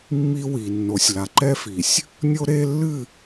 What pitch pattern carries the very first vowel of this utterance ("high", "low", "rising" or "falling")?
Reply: high